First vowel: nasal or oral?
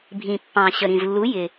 nasal